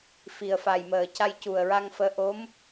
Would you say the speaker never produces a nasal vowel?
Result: yes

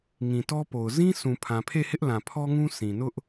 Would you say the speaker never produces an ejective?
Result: yes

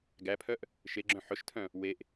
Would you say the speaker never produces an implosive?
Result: yes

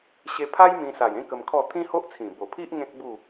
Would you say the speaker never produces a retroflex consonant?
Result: yes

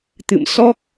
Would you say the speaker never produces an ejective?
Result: yes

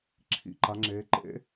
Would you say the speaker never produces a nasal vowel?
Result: yes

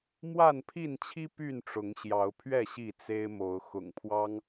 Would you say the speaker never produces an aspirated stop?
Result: no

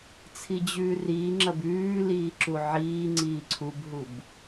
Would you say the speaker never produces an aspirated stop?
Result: no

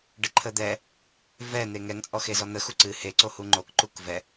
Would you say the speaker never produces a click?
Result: no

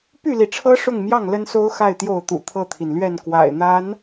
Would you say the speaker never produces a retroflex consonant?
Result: no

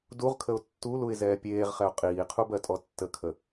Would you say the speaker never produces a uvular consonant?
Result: no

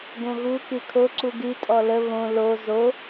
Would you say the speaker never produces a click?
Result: no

